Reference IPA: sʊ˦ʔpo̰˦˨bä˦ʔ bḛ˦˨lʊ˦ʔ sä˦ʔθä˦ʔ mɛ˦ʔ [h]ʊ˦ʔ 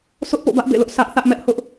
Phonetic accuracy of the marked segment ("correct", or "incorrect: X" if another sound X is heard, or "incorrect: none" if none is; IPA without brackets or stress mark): correct